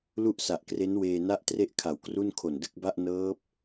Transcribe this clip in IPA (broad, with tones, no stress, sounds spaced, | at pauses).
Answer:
l u˥˩ ʔ s a˨˩ ʔ k r e˦˥ n w eː˧ n a˥˩ ʔ t r e˥˩ ʔ kʰ a˩˦ w k r u˥˩ n kʰ o˨˩ n d ɯ˥˩ k̚ b a˥˩ ʔ n ɤː˦˥ p̚